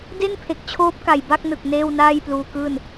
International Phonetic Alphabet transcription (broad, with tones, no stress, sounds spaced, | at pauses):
d e˥˩ n pʰ e˨˩ k̚ t͡ɕʰ oː˦˥ p̚ k a˨˩ j b a˥˩ k̚ n ɯ˨˩ k̚ n eː˥˩ w n aː˥˩ j p l uː˧ k ɯː˥˩ n